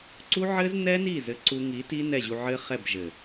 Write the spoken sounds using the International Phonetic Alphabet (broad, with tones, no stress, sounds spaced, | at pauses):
ǀ u˦ ʕ ɘ˦ z n ɛ˦ n i˦˨ z ɘ˧ ǀ u˧ ŋ i˨˦ t i˦ n ɛ˦˨ ʑ u˧ ʕ ɘ˦ χ ɛ˦˨ b ʒ ɘ˨